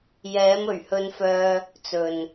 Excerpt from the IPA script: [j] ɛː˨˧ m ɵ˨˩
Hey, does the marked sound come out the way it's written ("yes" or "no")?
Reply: yes